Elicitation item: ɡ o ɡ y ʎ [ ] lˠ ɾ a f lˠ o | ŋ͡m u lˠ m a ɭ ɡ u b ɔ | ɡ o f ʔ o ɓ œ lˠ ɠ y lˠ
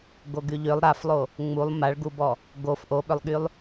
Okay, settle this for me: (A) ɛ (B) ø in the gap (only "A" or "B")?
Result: B